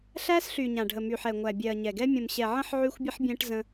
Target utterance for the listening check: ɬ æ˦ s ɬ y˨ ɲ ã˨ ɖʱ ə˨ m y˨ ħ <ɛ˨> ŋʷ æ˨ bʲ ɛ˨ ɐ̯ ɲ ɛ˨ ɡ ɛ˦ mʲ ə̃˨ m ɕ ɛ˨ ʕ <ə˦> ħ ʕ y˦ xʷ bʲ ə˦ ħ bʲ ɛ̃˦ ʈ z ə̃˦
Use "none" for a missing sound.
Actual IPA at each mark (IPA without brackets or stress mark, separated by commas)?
ɛ˨, ə̃˦